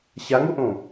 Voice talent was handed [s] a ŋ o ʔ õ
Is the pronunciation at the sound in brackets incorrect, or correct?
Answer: incorrect